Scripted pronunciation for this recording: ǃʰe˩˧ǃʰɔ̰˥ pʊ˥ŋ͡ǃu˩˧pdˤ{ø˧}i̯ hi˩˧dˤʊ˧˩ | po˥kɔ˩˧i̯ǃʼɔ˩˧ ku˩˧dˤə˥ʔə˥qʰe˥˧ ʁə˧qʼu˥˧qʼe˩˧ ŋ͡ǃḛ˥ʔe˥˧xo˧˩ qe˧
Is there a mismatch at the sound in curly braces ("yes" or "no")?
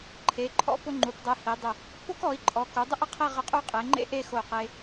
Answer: yes